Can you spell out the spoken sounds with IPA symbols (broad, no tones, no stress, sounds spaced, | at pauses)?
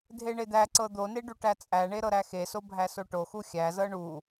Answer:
dʱ e ɳ e d̪ æ ǀ ɤ d̪ o n e ɖ u ʈ æ t͡sʼ æ ɳ e ɾ ɤ ɾ æ x e s o bʱ æ s o ʈ o x u xʲ æ z ɤ ɳ u